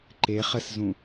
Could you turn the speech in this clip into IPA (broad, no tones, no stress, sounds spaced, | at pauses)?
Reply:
ǃ e χ ə s z ũ